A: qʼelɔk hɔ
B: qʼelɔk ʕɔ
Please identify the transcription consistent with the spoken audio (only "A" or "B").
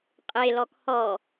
A